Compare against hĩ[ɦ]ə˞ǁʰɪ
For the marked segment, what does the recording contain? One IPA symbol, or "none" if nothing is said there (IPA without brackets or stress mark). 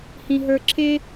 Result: ɦ